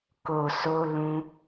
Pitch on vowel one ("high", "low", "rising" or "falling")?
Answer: low